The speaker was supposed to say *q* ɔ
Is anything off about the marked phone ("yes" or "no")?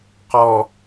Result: no